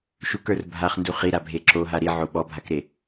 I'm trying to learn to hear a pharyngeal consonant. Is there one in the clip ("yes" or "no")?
yes